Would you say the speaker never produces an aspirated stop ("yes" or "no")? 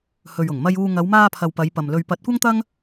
no